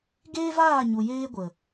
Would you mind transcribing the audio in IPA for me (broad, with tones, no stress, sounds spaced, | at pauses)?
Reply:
ɡ eː˦ v aː˦˨ ɲ u˨ j eː˦ ɡʷ ə˨